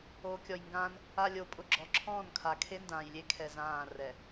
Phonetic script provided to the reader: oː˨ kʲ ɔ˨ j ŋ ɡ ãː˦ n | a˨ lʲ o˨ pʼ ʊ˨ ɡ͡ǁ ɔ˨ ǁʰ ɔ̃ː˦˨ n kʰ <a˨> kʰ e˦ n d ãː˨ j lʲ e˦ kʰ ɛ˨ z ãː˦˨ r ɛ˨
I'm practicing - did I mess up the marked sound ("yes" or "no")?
no